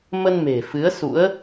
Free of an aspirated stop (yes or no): yes